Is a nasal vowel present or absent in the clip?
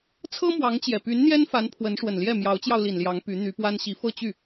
absent